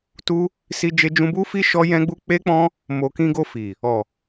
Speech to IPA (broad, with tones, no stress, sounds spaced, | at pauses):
t u˦ | s i˦ d͡ʒ e˦ d͡ʒ ũ˦ b u˦ f i˦ ʃ ɔ˦ j ɛ̃˦ ɡ͡b u˦ k͡p e˦ k͡p ɔ̃˦ | m o˨ k ĩ˧ ɡ o˧ f i˨ | ɔ˨